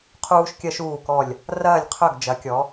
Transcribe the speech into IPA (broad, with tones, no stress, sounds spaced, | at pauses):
qʰ uː˥ ʃ kʲ ɜ˥ ʃ uː˥˧ k ɔ˥˧ lʲ | r ɐː˥˧ lʲ qʰ œ˥˧ ɡ d͡ʒ ɐ˧˥ kʲ ɔ˧˥